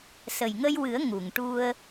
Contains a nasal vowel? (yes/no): no